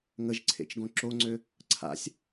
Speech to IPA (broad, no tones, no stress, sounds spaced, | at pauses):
ŋ ə ʒ ǀʰ ḛ t͡ʃ ɡ õ ǁ o ŋ͡ǀ ø | ǀʰ a̰ sʲ